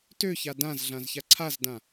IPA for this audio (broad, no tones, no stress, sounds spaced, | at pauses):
t ø ç a d ã z ɮ ã z ç a ǀʰ a z d ã